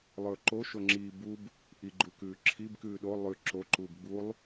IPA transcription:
lˠ ɵː ǃ o ʃ o ŋ͡ǁ iː b u b | ʔ i ɡ͡ǃ u k ʉː ǁʰ i b k ʉː ɗ o lˠ ʉ ǁ o ǃ uː b ɡ͡b u lˠ

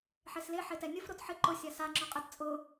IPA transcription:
ħ e s l e ħ e t ɛ nʲ ʊ f ɾ o t ħ ɪ ǃ ʊ sʲ a s a ŋ͡ǁ ɔ qʼ ɪ t t͡sʼ ʊ

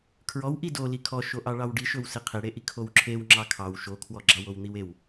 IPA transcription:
kʰ ɹ ɔ w ʔ i d o l i kʰ ɔ ʃ o ʔ ɑ ɭ ɑ w ɖ i ʃ ɵ w s e qʰ e ɽ e ʔ i kʰ o w ǁʰ e w ŋ͡ǁ ɑ kʰ ɑ w ʃ o kʰ w ɔ ɡ͡ǁ ɑ w o w n̪ i w e w

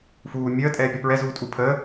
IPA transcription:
f uː mʲ əː tʼ ɛː pʲ ɒ p ɹ ɛ z uː tʼ u pʰ əː

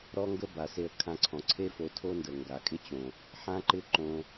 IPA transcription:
ɾ ɔ˦ ŋ ɡ ə˦ b a˨ s e˧ ə̯ kʰ ã˧ ǀʰ ɔ̃˨ ǀʰ e˦ f o˧ tʰ o˦ n d ə˨ ŋ ɡ a˨ kʼ ɪ˦ t͡ɕ õ˨ | ħ ã˦ ǃ ɪ˦ ǃ õ˦

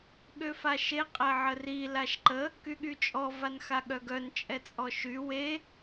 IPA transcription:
ɠ ø f a ʃ e qʼ ɛ ʕ ə r i l a ʃ ǃ ə | k y ɠ y t͡ʃʼ ɔ v a n x a ɠ œ ɡ œ n t͡ʃʼ ɛ t͡sʼ ɔ ʃ y w e

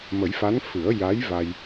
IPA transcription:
m ə˨˩˦ j f a˧˥ n f ɨ˨˩˦ ə̯ j a˧˥ j v a˧ j

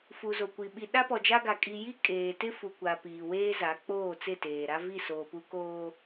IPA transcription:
f u˨ z o˨ kʷ i˨ ɓ i˨ ɗ a˦ p ɔ˨ d͡ʒ a˦ ɡ a˨ kʼ i˨ j i˦ kʼ eː˨ t ɪ˦ f u˨ kʷ a˨ p iː˨ w eː˦ z a˨˦ k͡p oː˦˨ t͡s ɪ˦˨ t eː˨ ɾ a˦ v i˦˨ s oː˨ p u˦ k oː˦

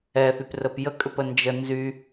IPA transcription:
ɛ θ y p r ə p j ə kʼ ʏ p ə n d͡ʒ ə n z y

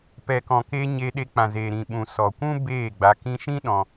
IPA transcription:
p ɛ˨ k ɔ̃˨ k eː˧ ɲ e˧ ɗ e˧ k͡p ã˨ z eː˨ ɾ ĩ˨ ɓ ũ˨ s ɔ˨ kʷ ũ˦ b eː˦˨ ɡ͡b a˧ k ĩ˧ ʃ ĩ˦ ɗ ɔ̃˧

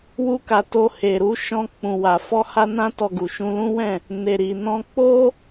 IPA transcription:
w u˧ k a˨ t o˧ h e˨ ɾ u˧ ʃ ɔ̃˧ k͡p ũ˨ w a˨ f ɔ˧ h a˧ n ã˧ t ɔ˨ ɡ u˨ ʃ ũ˧ l ũ˦ w ɛ̃˦˨ | n e˨ ɾ i˨ n ɔ̃˧ k͡p o˦

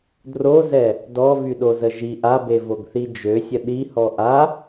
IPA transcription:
d r o z ɛ | d ɔ v y ɗ o z ə ʒ i ʔ a b e v o ɡ θ i d͡ʒ ø sʲ ə ɗ i h ɔ ʔ a

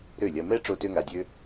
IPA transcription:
ɾ ø˥˩ lʲ ɐ˧ m ɛ˥ ʈ͡ʂ o˧ t ø˧ ŋ a˩ dʲ ø˧

